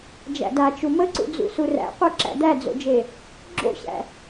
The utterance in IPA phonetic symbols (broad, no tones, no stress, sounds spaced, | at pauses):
d͡ʒ æ̰ d a t͡ʃ u m ə ǀ ṵ d͡z ṵ s u r æ̰ qʷ e ǁ æ̰ d̪ æ d͡z o̰ d͡ʒ e | ɡ͡ǁ o̰ ɕ æ̰